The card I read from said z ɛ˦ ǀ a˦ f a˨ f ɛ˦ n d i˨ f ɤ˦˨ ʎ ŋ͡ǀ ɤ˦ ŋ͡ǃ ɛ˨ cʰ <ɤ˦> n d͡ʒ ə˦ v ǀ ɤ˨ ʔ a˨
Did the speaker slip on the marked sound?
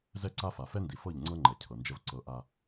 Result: yes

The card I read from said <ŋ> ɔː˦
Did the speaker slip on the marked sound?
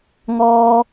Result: no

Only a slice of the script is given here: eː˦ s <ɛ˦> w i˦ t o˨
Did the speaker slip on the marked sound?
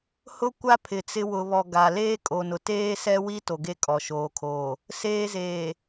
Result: no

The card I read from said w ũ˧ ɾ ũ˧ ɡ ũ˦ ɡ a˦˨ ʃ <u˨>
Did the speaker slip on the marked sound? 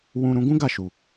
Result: no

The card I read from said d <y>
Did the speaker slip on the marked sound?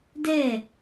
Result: yes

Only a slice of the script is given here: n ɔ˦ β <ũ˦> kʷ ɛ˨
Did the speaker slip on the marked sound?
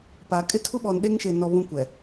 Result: no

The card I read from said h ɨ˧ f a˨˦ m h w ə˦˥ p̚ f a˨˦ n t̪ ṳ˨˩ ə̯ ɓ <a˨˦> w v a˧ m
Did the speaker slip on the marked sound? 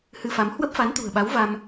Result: no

